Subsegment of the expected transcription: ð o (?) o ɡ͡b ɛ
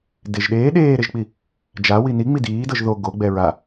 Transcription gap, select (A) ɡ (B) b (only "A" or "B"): A